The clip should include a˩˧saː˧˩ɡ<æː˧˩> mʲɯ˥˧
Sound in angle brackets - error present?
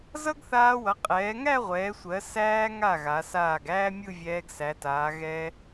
yes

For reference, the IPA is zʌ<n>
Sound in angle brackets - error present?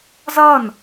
no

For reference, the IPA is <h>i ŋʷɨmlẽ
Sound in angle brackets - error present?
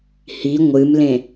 no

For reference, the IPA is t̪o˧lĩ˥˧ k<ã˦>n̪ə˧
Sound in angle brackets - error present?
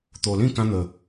no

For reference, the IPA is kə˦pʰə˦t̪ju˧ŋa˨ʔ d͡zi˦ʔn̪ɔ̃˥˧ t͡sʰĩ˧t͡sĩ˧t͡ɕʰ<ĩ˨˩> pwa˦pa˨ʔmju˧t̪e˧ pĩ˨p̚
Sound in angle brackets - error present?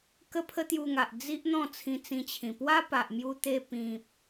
no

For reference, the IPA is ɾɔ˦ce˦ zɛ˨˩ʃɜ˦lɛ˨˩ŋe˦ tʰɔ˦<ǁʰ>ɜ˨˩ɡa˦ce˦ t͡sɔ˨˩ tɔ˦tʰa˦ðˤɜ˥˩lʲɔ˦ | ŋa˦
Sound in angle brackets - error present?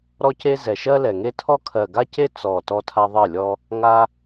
yes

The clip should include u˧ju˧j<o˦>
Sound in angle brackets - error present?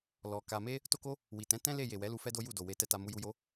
no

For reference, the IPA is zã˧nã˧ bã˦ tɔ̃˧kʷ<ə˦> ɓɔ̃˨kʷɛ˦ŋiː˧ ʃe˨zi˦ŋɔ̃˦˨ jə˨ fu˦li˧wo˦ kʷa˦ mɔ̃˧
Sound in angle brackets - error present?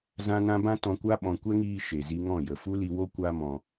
yes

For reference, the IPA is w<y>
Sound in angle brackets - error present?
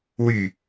no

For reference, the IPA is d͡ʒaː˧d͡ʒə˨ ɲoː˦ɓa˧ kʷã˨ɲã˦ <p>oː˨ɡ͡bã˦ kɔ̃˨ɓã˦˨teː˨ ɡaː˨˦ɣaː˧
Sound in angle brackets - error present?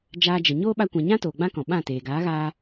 yes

